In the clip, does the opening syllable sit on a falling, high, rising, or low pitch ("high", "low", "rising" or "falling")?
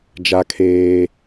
high